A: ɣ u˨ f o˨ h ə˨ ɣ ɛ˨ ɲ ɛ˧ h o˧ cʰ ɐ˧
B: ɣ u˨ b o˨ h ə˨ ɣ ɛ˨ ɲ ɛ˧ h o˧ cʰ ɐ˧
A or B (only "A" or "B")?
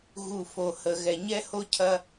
A